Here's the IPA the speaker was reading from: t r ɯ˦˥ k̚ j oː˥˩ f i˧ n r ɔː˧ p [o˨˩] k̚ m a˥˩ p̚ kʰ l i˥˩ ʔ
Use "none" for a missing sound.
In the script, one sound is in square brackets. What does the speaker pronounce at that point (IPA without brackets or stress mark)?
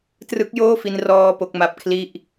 o˦˥